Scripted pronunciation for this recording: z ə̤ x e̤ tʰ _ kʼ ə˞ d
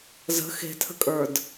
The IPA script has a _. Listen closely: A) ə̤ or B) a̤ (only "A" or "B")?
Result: A